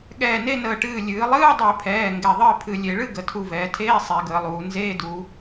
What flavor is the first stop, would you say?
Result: implosive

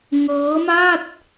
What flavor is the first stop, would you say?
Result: plain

